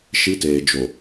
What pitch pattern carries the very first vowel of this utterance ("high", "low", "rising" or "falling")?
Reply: high